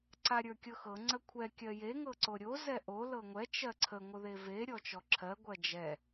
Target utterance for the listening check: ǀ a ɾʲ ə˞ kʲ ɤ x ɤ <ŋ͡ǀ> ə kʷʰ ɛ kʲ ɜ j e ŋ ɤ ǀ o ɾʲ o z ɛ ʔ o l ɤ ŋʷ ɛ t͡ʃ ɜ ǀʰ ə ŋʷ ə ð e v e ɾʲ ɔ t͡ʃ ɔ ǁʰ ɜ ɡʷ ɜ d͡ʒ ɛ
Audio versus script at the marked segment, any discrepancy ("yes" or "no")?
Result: no